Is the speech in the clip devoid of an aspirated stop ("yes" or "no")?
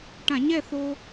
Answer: yes